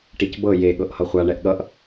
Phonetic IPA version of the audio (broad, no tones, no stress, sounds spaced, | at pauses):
ʈ i c b ɤ j e ɠ ɤ ʔ h ʌ χʷ a ɳ ɛ ʔ ɠ ʌ ʔ